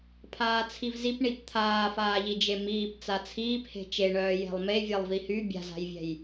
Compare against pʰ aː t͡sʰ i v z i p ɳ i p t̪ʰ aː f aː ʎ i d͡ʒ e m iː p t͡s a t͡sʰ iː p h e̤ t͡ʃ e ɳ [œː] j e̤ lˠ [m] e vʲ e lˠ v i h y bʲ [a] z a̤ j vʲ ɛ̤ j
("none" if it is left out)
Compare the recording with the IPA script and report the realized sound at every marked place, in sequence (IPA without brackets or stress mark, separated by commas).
œː, m, a̤